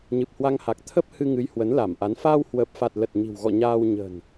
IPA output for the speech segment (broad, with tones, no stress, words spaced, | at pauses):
ɲɨ˨˩p̚hwa˧ŋha˨˩k̚ t̪ʰə˦˥p̚ hɨ˧ ŋɨ˨˦jhwə˨˦nla˧˩mʔa˨˦n faː˧whwəː˨˩p̚fa˨˩t̚ lə˨˩t̚ɲi̤˨˩wɣɔ̰˧˨ ɲaː˧w ɲə̤˨˩n